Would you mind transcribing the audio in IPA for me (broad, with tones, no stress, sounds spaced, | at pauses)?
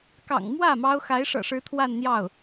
k ɑ̰˨˩ ŋ m w ä˥˩ m ɑ˥ ʊ̯ x a˧˥ ɪ̯ ʂ ɤ̰˨˩ ʂ ɻ̩˧˥ t̪ʰ w a˥˧ n n̪ j ɑ˥˩ ʊ̯